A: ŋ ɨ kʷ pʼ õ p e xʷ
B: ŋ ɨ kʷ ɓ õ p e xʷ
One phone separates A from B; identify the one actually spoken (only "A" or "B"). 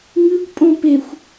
A